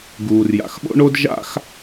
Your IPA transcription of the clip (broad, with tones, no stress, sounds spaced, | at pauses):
ɡ uː˨ r j a̰˨ x ɓ o̰˦ ɳ o˦ d ʒ a̰˦ x